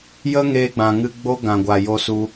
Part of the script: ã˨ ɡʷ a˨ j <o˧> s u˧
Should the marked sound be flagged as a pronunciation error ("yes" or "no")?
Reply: no